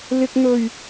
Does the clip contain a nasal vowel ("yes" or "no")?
no